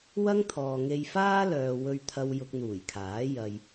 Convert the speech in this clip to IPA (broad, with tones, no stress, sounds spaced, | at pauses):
w ɐ˥ ŋ t̪ʰ ɔː˨ ŋ e˧ j f aː˥ l œː˨ w ɵ˧ ɥ t̪ʰ ɐ˧ w j ʊ˧ k̚ n̪ uː˨˩ j kʰ aː˨˥ j ɐ˨ j